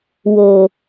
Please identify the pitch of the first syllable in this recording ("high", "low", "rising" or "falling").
low